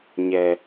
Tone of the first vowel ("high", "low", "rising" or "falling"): high